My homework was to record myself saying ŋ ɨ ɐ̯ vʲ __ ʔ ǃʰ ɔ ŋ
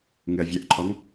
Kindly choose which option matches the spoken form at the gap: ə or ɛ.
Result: ɛ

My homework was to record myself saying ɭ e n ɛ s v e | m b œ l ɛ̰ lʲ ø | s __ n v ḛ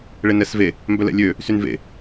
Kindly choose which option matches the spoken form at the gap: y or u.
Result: y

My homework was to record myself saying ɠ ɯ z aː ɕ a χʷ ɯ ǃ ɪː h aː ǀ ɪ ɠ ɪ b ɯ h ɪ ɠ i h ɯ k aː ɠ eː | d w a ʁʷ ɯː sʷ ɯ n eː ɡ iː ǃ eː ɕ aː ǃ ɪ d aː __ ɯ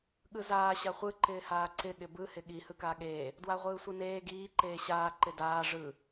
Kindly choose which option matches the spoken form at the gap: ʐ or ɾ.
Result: ʐ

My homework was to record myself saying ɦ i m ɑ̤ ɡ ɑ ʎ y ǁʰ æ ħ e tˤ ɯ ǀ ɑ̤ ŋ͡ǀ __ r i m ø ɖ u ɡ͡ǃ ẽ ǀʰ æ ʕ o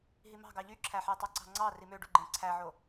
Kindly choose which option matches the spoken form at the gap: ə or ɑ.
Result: ɑ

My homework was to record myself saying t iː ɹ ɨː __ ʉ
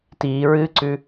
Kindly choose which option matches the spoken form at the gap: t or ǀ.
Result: ǀ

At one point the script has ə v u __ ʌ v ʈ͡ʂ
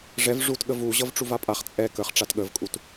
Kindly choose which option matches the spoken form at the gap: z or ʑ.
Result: ʑ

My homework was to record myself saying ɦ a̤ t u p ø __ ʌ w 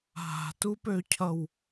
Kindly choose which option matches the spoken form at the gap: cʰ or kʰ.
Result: cʰ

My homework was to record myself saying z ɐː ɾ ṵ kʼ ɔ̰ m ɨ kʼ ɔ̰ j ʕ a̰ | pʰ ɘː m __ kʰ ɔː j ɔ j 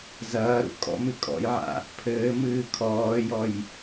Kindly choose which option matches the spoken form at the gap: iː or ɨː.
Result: ɨː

